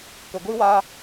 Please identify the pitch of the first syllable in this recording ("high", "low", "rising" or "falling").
low